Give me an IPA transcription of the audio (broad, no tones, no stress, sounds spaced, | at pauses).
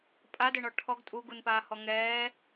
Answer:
pʼ a d ɘ ɳ ɔ ʈʰ ɔ ɡ tʼ u ɡ u n p aː h ɔ ŋ ɛː